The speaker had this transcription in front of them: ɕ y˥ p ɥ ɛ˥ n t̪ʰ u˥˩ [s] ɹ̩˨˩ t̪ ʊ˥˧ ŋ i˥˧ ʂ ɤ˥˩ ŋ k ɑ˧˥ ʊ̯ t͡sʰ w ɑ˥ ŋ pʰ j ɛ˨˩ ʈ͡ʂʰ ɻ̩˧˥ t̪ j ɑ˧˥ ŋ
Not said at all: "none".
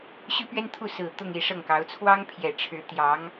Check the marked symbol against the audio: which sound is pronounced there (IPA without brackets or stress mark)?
s